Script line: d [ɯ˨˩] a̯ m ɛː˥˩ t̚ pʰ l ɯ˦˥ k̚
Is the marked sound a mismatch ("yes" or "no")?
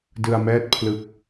yes